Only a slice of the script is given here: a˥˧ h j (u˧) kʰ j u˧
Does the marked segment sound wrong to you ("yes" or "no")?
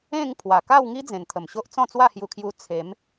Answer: no